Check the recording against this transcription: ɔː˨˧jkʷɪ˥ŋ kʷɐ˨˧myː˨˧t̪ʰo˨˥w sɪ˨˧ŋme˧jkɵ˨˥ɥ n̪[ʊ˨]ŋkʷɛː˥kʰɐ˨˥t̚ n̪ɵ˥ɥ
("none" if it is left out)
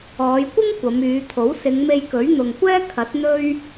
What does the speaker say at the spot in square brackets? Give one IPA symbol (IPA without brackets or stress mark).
ʊ˨